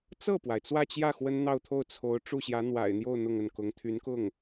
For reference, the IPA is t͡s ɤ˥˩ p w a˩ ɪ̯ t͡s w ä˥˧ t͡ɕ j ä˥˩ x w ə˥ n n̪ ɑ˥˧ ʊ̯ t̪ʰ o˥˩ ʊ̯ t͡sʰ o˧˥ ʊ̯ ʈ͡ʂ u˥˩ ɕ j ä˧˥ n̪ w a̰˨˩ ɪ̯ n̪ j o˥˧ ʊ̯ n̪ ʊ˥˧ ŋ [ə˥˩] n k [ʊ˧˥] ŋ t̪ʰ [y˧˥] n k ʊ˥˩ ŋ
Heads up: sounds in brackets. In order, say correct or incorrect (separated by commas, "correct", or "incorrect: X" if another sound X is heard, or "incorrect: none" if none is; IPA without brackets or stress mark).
correct, correct, correct